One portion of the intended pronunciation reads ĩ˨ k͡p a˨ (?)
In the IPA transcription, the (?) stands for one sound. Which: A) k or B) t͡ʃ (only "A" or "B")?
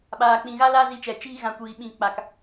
A